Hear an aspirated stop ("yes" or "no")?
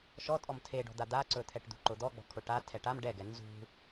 yes